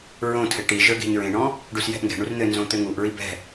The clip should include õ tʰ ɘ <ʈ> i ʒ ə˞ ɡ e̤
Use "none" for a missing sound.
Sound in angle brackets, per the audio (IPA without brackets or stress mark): ʈ